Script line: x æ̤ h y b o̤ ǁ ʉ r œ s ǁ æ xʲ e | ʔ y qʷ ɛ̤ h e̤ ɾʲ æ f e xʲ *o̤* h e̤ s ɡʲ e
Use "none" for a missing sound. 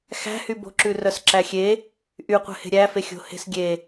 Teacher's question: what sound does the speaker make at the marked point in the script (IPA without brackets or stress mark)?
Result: o̤